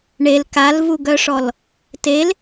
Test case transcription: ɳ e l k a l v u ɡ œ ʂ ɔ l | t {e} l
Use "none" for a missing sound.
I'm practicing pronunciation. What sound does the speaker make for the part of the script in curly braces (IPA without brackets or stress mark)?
e